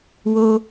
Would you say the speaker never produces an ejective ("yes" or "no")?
yes